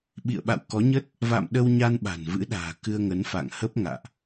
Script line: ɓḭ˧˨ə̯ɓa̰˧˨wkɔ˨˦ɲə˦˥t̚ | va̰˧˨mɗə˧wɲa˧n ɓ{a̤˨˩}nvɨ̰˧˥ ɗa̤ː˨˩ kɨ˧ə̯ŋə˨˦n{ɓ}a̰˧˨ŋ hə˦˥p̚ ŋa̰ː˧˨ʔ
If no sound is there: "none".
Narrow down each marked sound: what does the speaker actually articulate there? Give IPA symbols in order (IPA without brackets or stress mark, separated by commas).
a̤˨˩, f